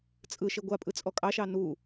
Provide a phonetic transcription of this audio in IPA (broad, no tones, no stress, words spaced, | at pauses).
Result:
t͡sʼɯ ʃeɡʷapʼɯ t͡sʼɔkʼɑʃɑ nu